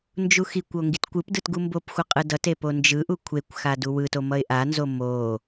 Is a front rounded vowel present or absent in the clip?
absent